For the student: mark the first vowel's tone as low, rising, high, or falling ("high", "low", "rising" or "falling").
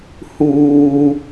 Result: low